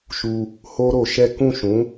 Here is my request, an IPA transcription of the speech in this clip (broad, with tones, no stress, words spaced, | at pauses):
ʃu˧ | ho˦ɾo˧ʃɛ˦ kũ˦˨ʃũ˨˦